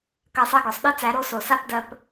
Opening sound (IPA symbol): k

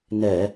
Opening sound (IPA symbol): n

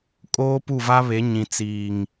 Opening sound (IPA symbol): kʼ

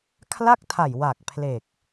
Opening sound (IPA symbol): kʰ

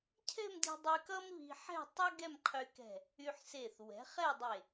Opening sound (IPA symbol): cʰ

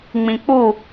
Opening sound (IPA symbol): ŋ͡m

